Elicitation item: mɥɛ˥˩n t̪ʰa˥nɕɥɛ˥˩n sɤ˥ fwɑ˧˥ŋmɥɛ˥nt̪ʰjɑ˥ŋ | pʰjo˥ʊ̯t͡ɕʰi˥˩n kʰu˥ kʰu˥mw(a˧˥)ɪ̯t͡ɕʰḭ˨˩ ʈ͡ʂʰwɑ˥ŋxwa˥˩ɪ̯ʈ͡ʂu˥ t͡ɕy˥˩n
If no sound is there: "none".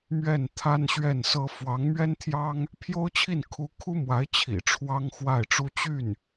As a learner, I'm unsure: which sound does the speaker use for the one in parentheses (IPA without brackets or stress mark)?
a˧˥